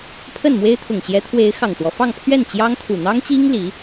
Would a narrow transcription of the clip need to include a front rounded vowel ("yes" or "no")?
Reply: no